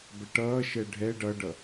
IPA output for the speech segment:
b ɛ ʈ ʌː ʃ ɛ ɖʱ ɛ ɖ ʌ ɖ ʌ

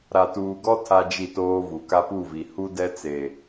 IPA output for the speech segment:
ɾ a˨ t uː˨ ɡ ɔ˦ tʰ a˦ d͡ʒ i˦˨ t oː˦ v u˨ k a˦ p u˦˨ v i˨ h u˦ d ɛ˦ t͡s e˨

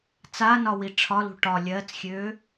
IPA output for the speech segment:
t͡s a n ɒ w i ʈ͡ʂʰ ɒ l ṳ ʈ ɒ lʲ ɜː t͡s xʲ øː

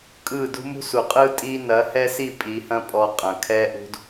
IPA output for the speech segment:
kʼ ɯ˦˨ d ṳ˦ m ṳ˦ s u˨ qʼ ɯ˦ tʼ i˦ n ɐ˨˦ h ɛ˦ s i˦˨ pʼ i˨˦ h ɐ̃˦ pʼ ɔ˧ qʼ ɐ̃˨ kʰ ɛ˦ ʔ ṳ˦ d

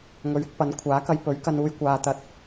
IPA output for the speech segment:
ŋ ɵ˨ ɥ ɪ˧ k̚ p ɐ˨˥ n kʷʰ aː˨˥ k ɐ˧ j p ɵ˨˥ ɥ k ɐ˧ n uː˧ j kʷ aː˧ t̪ ɐ˧ t̚

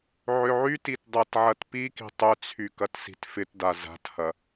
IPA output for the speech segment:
ʕ ʏ ʕ y t i t dˤ a t ʕ ɐ t p i k i̤ tˤ ʏ t͡sʰ y k ɐ t s i̤ t f ɪ t d a z a̤ t h ɐ

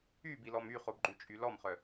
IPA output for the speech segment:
y b i l ɔ m y χ o b ɡ͡ǃ ʉ t͡ʃʼ y l ɔ m χ œ

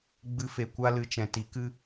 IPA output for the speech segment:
ɡ͡b ɨ˧ f e˨ kʷ a˦ l ɨ˧ t͡ʃ ɛ̃˨ t i˨˦ k ɨ˦

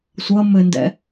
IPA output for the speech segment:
sʷ ʌ m ɘ n d ɛ̰

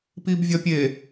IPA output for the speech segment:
p i b vʲ ɒ pʲ e

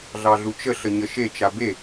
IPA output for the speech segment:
ɮ ɑ ɮ u t͡ʃ ə ɬ ə ɲ ə ʃ e t͡ʃ a b e

